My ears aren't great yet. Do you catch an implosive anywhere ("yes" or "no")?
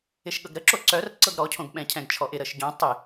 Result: yes